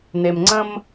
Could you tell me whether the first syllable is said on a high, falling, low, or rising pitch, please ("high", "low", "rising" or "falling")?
low